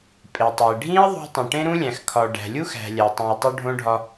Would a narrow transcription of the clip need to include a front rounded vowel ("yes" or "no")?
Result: no